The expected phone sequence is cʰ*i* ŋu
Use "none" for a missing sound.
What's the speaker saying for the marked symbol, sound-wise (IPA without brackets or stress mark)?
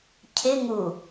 ɪ